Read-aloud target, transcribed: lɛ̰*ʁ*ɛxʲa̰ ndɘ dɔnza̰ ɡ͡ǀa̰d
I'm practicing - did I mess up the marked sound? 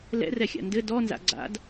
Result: yes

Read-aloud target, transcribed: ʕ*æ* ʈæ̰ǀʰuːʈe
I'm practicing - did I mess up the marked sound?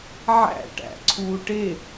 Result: yes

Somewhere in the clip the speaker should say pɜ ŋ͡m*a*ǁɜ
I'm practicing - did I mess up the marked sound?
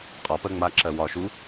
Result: no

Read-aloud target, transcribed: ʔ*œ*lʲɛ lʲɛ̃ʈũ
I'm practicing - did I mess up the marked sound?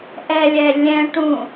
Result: yes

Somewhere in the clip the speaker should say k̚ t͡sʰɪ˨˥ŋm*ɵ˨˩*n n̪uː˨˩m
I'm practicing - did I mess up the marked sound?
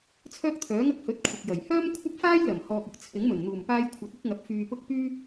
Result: no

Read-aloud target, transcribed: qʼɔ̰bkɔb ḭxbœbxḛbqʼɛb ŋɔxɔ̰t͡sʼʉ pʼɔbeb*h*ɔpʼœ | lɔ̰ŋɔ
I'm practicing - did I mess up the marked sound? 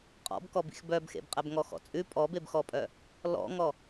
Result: yes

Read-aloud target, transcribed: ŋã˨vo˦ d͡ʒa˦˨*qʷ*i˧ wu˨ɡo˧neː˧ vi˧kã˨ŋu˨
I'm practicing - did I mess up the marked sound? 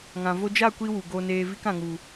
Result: yes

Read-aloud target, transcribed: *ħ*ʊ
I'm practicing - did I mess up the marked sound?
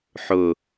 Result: no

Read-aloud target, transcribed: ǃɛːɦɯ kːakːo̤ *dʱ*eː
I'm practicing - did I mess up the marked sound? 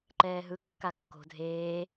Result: no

